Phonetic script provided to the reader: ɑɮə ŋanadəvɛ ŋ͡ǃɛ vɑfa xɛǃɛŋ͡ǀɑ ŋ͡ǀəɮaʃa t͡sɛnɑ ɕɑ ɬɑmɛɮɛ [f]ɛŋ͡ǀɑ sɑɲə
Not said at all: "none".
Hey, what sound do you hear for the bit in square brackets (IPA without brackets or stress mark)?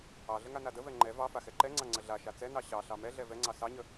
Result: v